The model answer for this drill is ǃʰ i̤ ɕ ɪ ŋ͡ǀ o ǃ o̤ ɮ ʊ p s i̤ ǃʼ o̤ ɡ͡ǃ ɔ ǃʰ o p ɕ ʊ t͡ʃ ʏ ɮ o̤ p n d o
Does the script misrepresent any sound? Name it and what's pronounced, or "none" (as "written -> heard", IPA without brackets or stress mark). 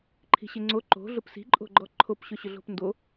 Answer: t͡ʃ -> ɕ